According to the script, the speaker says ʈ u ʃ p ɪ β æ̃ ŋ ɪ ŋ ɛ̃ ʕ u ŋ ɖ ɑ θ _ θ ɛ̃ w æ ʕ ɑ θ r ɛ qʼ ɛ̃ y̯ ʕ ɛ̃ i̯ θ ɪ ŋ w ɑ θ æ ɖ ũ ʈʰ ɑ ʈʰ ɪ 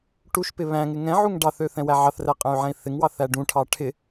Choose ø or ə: ø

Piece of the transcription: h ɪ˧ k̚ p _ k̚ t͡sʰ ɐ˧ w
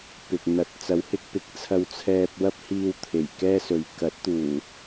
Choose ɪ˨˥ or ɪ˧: ɪ˨˥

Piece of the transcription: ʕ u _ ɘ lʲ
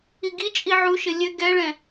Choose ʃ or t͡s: ʃ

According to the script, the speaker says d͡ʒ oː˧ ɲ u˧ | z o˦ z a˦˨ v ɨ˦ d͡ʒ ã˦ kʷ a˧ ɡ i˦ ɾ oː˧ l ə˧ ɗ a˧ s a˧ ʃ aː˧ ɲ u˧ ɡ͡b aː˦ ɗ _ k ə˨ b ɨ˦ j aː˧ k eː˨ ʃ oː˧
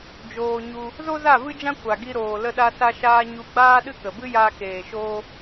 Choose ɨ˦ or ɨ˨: ɨ˦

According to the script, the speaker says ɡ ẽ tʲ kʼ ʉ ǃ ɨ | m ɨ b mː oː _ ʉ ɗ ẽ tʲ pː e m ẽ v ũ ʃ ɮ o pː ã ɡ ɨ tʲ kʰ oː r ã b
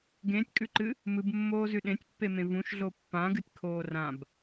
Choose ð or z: z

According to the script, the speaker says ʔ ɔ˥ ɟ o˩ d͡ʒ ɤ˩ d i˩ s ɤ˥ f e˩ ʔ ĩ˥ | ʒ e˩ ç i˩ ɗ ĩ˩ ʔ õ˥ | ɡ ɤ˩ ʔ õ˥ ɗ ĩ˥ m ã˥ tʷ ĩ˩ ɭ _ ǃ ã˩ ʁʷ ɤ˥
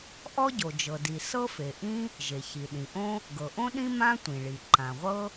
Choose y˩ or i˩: i˩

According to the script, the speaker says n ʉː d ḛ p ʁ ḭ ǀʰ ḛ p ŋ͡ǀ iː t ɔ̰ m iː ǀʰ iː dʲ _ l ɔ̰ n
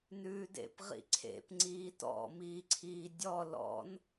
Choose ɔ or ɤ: ɔ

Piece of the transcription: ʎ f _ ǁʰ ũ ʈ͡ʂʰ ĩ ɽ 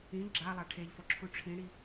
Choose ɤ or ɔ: ɔ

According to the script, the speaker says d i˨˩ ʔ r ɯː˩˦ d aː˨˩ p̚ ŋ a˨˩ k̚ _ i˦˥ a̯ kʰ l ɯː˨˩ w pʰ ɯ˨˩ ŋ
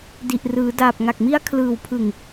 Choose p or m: m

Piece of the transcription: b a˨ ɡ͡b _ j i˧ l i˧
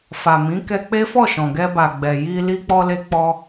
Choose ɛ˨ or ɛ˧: ɛ˨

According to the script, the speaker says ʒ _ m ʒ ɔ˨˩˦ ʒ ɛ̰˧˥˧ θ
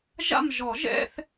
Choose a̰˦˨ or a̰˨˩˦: a̰˦˨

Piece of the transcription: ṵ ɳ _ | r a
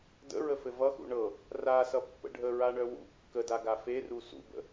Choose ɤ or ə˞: ɤ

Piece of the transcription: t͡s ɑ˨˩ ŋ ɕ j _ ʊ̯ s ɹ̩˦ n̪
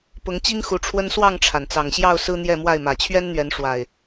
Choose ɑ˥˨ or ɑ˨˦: ɑ˥˨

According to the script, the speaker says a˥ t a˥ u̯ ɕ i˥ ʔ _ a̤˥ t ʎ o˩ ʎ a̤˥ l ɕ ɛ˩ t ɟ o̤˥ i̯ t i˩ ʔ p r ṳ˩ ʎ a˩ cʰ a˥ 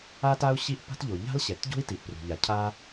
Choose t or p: p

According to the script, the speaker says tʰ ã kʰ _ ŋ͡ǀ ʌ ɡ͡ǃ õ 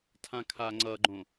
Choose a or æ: a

